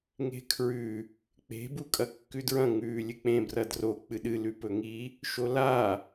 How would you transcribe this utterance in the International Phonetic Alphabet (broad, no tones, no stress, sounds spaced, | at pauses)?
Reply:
ŋ e̤ kʰ ɹ ʉ | k͡p e̤ b u kʼ ɐ kː ʉ d ɹ ɐ̃ ŋ ʉː lʲ ɨ k͡p ẽ b r ɐ d r o k͡p ɨ ɗ ɨ l ʉ p ɵ ŋ i | ʃ o l a